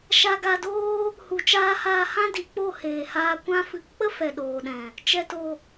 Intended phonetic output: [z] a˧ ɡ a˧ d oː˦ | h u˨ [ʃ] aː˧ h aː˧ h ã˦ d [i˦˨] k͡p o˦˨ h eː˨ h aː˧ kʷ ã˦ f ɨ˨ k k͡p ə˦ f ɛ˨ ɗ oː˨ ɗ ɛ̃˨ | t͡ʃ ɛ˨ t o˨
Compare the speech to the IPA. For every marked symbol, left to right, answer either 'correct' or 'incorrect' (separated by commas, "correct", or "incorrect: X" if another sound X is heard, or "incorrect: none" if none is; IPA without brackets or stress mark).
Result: incorrect: ʃ, incorrect: t͡ʃ, incorrect: i˨